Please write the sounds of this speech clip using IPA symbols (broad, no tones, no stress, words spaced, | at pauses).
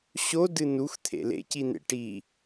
ɕo dɨnux t̪ʰḛlḛ cin̪ḛʈi